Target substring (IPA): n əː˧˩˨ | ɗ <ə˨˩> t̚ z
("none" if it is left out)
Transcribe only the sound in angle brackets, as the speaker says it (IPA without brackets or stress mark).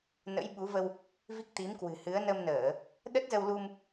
ə˦˥